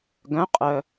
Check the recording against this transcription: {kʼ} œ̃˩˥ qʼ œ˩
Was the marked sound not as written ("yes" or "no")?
yes